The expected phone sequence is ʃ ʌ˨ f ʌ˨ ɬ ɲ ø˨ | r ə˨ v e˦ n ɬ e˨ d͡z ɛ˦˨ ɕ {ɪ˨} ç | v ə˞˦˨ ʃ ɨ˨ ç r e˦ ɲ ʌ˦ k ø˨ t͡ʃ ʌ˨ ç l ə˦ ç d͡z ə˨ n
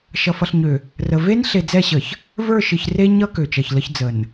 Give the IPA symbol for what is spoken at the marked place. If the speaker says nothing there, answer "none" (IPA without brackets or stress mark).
ə˨